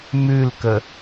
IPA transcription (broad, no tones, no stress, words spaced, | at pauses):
mʉlkə